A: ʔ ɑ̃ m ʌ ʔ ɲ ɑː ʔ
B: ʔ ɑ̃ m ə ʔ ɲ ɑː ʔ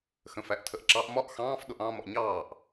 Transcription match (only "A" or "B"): A